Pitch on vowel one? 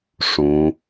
rising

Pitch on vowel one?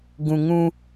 low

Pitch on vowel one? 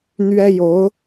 high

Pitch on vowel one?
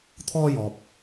high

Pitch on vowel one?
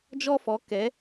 high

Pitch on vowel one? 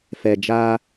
low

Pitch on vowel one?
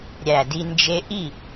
low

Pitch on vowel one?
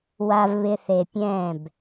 low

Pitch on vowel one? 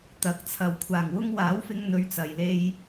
rising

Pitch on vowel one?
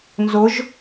rising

